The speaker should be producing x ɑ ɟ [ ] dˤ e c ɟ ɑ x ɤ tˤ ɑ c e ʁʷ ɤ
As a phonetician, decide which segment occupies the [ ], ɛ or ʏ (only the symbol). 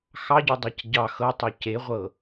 ʏ